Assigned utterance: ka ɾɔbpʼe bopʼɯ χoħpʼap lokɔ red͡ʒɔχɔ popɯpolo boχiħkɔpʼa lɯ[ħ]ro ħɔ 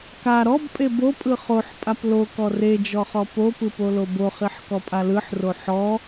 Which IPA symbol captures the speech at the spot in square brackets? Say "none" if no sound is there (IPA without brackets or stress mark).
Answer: ħ